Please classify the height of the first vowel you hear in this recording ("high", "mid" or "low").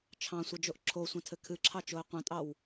low